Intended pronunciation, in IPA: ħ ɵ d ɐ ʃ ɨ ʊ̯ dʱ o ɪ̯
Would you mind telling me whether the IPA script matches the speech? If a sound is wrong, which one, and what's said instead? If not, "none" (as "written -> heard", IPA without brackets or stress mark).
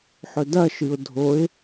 none